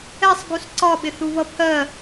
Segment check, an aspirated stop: present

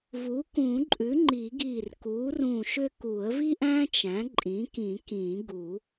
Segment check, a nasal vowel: present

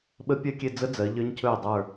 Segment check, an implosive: present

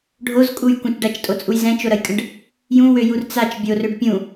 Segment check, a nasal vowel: present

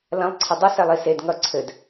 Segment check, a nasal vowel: present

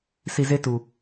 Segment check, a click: absent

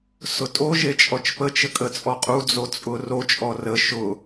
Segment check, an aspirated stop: absent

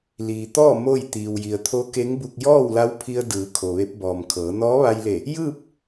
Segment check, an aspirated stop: present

